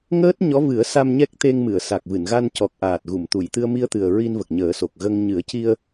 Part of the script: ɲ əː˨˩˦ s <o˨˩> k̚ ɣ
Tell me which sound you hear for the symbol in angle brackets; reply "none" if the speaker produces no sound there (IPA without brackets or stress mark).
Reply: o˨˩